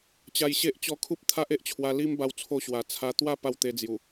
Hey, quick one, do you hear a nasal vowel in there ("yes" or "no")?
no